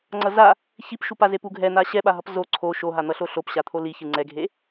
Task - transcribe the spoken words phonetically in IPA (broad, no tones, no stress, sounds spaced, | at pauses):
ŋ͡ǀ ʌ z a | ç i p ʃ u p a z e p u ɡʱ ɛ n̪ a ɕ ɛ ɓ a ɦ ʌ p z o ǀʰ o ʃ o ɦ a n̪ ʌ ɬ o ɬ o p ɕ a t̪ʰ o l i ç ɯ ŋ͡ǀ ɛ ɡʱ e